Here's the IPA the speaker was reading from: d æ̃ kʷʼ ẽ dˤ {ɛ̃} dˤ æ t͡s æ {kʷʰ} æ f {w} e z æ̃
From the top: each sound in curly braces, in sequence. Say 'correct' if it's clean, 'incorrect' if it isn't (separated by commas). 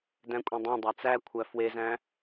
incorrect, correct, correct